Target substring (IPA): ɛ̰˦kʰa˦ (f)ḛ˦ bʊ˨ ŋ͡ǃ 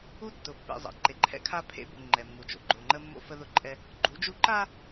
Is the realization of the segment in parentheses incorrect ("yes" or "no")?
yes